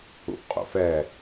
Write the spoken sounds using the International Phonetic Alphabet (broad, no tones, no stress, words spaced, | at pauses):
ṵʔqʼo̰fɛ